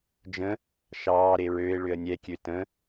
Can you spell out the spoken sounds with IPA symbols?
d͡ʒ ə̃ | ʃ ɑː ɾ e ɹ ø ɪ̯ ɭ ʏ ə̯ nʲ ɛ kʲ ø t ə̃

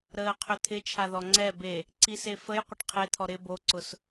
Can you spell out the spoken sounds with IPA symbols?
ɾ əː qʰ ʏ t̪ʰ ɪ t͡ʃʰ a ð ɔ ŋ͡ǀ ɛ b e | ǀ i s e f ə j qʷ ɪ ʈ qʰ e t̪ʰ ɔ ɾ ɪ b o ǀ ʊ s

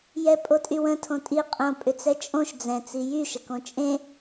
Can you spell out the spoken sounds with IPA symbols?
j ɛ pʼ o tʼ y w ə̃ tʰ õ tʼ i qʼ õ pʼ ʏ t͡s ɛ t͡ʃʼ õ ʃ d͡z ɛ̃ t͡s i j y ʃ ə k õ t͡ʃʼ ẽ

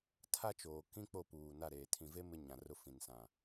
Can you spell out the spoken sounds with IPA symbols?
tʰ a˦ t͡ʃ oː˨ k ĩ˦ k͡p o˦˨ p uː˨ n a˦˨ ɾ eː˨ tʰ ĩ˨ v e˦ m ɪ˦ ɲ ã˨ r ʊ˦ f ĩ˨ n s ã˨

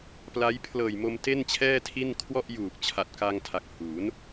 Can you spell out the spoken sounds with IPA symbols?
p l a˦˥ j pʰ l ɤː˨˩ j m o˧ m t e˥˩ n t͡ɕʰ ɛː˥˩ tʰ i˥˩ n kʰ w ɔ˥˩ ʔ j uː˨˩ k̚ t͡ɕʰ a˨˩ t̚ k a˧ ŋ tʰ a˨˩ k̚ h uː˩˦ n

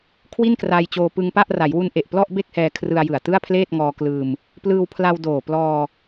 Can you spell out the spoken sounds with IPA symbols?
kʰ w i˥˩ n k r aː˧ j t͡ɕ oː˧ p ɯ˧ ŋ p a˥˩ ʔ r a˩˦ j w u˦˥ n ʔ e˨˩ ʔ p l ɔ˥˩ ʔ b e˥˩ k̚ h ɛː˧ kʰ r ɯ˧ a̯ j ɯ˨˩ a̯ t ɯ˥˩ a̯ pʰ l eː˥˩ t̚ ŋ ɔː˧ k l ɯː˧ m | p l ɯː˧ w pʰ l a˧ w d oː˨˩ p l ɔː˧

